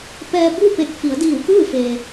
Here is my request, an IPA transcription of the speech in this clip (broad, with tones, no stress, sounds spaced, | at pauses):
p ɛː˧ b u˥˨ p e˧˩ k̚ f i˩˧ ə̯ d iː˧˩ w k ɯː˥˨ f eː˩